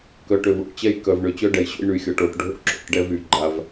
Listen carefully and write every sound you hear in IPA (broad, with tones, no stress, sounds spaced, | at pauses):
k œ˨ ʈ ø˨ v o̰˨ ʈ t͡ɕ ɛ˦ j k œ˨ v ɳ ø˨ t͡ɕ œ˦ ɖ ɛ˨ j ɕ o̰˦ j ɳ y˨ xʲ ɔ˨ ʈ o˨ ʈ ɖʱ o̰˦ ǁ o̰˦˨ ʈ ɖ ɛ˦ v y˨ ɡ͡ǃ a˦ v